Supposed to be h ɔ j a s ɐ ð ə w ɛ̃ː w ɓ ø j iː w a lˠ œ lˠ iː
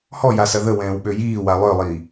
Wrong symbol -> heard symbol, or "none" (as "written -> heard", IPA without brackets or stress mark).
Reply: none